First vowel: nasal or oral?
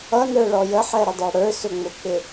oral